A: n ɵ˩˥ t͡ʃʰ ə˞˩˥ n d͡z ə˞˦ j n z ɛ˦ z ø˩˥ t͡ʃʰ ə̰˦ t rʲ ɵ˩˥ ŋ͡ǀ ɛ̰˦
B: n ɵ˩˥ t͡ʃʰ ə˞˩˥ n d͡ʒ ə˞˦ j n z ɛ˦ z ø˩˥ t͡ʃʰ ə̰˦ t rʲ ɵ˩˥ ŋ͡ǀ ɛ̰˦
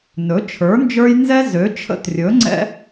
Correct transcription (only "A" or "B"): B